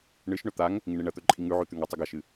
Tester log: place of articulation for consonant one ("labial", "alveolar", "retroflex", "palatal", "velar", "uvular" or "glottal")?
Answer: retroflex